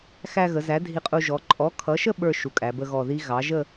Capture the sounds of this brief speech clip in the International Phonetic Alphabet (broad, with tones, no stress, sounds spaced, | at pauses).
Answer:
x æ˧ ɣ ə˩˧ z æ˩˥ dʱ i˧ qʼ u˧ ʒ ɔ˩˥ ǃʼ ɔ˩˥ kʰ ʌ˩˥ ʃ ə˥˧ ɓ ə˞˥˧ ʃ u˩˧ kʼ æ˩˧ b ə˧ ɣ ɔ˨˩ ð i˦˥ ɣ ɑ˩˥ ʒ ə˥˧